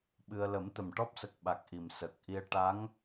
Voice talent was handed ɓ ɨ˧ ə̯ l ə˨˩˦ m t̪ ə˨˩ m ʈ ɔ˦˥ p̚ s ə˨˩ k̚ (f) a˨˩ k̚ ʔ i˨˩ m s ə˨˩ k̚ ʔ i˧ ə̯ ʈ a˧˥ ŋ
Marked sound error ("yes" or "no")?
yes